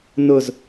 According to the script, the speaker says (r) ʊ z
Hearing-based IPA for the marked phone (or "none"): n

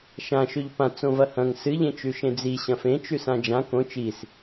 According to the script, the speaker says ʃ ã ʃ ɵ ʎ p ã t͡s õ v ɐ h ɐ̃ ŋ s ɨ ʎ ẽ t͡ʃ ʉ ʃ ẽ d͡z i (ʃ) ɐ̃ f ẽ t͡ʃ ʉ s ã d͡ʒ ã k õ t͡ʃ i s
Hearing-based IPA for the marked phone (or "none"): ɕ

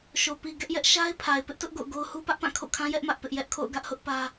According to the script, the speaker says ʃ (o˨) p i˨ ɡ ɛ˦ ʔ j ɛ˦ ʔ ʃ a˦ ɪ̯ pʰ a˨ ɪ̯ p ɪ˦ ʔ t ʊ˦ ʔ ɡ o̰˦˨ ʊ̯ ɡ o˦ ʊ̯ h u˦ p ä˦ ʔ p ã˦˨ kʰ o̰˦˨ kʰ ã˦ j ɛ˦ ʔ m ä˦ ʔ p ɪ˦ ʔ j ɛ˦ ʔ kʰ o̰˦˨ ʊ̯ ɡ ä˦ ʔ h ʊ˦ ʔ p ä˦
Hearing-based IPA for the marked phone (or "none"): o˨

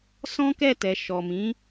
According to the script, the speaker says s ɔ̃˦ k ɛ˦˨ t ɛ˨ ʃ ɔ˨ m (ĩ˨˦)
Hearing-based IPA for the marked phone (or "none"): ĩ˨˦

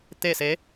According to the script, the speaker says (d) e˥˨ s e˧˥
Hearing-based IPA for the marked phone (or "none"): t̪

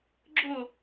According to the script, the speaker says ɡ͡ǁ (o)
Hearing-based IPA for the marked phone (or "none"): o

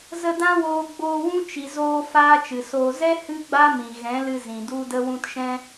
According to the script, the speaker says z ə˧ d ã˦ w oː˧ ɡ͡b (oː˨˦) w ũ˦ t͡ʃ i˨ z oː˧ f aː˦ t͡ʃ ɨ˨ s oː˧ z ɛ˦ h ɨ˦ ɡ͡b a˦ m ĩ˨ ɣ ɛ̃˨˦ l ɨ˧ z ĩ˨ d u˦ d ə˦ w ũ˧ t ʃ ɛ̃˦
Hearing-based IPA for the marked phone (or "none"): oː˧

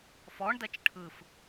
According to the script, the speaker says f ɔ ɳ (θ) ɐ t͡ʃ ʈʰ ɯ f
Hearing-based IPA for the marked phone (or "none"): d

